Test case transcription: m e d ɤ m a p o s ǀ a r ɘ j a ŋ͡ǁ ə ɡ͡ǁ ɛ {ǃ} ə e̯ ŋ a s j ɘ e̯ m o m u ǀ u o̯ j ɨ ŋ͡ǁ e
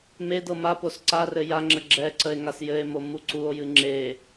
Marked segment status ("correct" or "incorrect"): incorrect